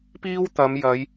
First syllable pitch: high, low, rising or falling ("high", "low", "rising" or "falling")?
high